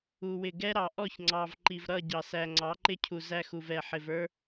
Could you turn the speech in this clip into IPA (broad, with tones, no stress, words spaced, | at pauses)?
u˨wɪ˨ ɡɛ˦ɾɑ˨ʔɔ˦˨ç ŋ͡ǀɑ˨v ǃi˨vɾʌ˦˨ɟɑ˨ sæ˨ ŋ͡ǀɑ˨˦ǃɪ˦cʰu˨ zæ˦xu˨vɛ˨ħɪ˨v ə˞˦